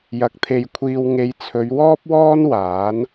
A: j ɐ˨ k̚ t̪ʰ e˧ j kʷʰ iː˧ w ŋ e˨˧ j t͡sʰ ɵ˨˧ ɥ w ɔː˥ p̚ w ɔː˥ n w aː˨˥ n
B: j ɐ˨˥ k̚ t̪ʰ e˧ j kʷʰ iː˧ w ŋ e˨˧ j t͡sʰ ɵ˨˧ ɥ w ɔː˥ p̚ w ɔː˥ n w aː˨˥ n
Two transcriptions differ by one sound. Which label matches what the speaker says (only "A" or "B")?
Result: B